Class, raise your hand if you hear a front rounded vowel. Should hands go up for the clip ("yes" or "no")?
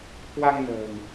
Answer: no